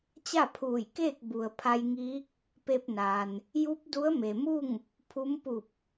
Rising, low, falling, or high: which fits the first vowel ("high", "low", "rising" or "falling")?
falling